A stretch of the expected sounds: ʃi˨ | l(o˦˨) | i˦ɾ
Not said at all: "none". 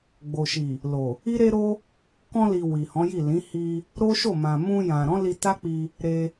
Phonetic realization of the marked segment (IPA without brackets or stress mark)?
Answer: o˨